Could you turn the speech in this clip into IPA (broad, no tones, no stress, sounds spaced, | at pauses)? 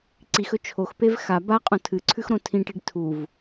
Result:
ǀ i x ɵ t͡ʃʰ o x p e v x a b a qʼ õ tʰ ɨ ǀʰ ʉ x ɾ õ tʰ ĩ ʈ i ɖ tʰ u v